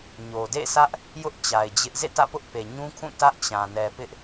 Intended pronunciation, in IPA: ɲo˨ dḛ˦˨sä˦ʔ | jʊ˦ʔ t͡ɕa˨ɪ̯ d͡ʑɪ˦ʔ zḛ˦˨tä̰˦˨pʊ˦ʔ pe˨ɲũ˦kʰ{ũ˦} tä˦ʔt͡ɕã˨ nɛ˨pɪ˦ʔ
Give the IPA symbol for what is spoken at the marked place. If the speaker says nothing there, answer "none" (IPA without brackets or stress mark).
ũ˦˨